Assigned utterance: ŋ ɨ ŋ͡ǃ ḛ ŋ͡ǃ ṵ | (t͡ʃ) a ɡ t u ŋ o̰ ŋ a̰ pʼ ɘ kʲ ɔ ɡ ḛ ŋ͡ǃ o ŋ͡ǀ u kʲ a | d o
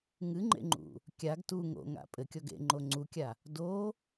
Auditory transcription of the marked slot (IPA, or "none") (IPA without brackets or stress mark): kʲ